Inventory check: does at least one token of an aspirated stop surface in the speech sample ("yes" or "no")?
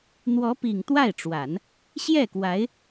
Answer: no